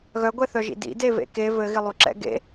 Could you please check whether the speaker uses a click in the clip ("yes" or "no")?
yes